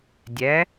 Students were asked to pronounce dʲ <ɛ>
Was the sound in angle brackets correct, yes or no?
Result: yes